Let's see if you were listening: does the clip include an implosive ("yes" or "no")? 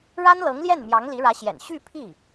no